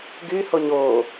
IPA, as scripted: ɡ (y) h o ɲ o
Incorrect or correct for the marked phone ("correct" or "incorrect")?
correct